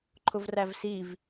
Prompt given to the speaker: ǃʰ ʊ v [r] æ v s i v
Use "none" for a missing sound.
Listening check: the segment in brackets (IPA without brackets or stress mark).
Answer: r